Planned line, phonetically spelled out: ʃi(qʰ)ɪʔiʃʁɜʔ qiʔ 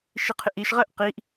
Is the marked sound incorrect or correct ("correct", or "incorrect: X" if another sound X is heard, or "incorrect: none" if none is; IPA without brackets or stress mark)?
correct